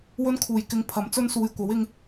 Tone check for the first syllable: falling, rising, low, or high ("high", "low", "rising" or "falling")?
high